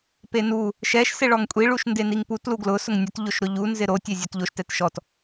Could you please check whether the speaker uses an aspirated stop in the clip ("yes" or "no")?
no